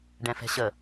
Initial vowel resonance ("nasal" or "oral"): nasal